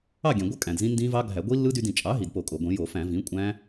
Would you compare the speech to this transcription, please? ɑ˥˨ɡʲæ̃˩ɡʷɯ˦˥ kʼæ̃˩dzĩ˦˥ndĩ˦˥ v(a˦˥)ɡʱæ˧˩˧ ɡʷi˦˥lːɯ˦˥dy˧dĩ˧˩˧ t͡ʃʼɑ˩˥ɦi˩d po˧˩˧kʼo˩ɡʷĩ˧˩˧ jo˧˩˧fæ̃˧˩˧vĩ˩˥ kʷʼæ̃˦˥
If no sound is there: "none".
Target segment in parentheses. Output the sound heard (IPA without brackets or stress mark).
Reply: ɑ˦˥